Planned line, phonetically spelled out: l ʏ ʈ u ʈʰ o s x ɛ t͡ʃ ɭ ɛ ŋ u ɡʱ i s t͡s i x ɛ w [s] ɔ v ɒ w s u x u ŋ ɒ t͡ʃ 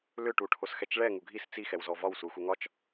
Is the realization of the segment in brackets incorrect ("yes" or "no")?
yes